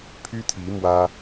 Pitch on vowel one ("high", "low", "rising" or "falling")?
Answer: high